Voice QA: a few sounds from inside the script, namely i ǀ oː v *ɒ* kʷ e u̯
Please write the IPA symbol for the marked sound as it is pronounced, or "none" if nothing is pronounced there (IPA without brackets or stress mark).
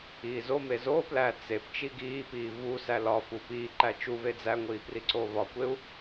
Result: ɒ